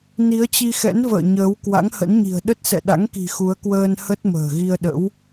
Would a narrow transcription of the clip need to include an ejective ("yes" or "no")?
no